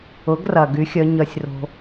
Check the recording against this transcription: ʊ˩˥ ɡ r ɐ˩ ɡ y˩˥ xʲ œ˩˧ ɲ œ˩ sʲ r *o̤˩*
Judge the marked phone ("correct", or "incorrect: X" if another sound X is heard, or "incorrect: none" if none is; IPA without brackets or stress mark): correct